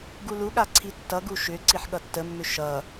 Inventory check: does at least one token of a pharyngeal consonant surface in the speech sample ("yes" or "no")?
yes